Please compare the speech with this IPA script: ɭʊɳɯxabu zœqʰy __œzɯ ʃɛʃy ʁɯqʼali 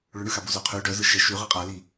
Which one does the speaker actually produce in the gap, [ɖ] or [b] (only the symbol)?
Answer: ɖ